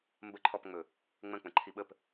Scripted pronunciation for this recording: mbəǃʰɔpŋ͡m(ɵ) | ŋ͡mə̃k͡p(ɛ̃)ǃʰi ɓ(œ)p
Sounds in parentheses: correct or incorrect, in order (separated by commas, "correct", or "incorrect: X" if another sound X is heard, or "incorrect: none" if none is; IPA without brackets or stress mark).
correct, incorrect: ə̃, incorrect: ə